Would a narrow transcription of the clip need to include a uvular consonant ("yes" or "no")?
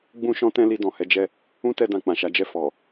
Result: no